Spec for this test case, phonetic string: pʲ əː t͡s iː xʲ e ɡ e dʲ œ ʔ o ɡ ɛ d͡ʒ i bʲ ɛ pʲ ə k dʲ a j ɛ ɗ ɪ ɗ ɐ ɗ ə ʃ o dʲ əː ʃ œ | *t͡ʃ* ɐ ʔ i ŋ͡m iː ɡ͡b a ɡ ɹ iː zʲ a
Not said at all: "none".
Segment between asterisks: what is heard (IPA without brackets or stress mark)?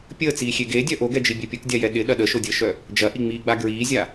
d͡ʒ